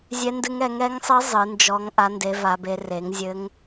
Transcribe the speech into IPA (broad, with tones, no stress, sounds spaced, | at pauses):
zʲ ɛ˦˥ n d ɨ˦˥ ŋ ɛ˨˦ ŋ ɛ˦˥ ŋ sˤ ɨ˦˥ zˤ ɨ˨˦ n d͡ʒ ɔ˦˥ ŋ ʔ a˦˥ n d e˦˥ v a˦˥ b e˦˥ r e˨˦ ŋ zʲ ɘ˦˥ ŋ